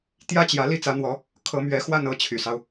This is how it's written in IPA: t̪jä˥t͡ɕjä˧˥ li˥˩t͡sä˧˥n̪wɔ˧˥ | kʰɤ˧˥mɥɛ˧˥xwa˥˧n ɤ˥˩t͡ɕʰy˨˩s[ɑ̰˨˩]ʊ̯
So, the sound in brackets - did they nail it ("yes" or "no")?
no